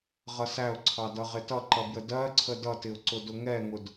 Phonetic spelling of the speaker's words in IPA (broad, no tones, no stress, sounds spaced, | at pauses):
ʁ ʌ s æ ʊ̯ ǀʰ ɑ d ʌ ʁ ɪ t ʌ ǃ ʌ b j ə d ɜ ǀʰ ə d ʌ t ɪ ʊ̯ ǀ ʊ d ʊ ŋ ɛ ŋ ʊ d